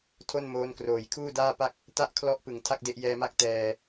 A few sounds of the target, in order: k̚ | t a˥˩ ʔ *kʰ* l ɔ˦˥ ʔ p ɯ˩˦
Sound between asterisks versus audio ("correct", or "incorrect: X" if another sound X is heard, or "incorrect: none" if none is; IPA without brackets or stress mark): correct